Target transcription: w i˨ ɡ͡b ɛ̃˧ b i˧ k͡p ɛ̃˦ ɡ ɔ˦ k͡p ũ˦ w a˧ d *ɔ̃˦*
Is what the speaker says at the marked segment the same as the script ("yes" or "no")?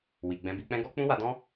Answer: yes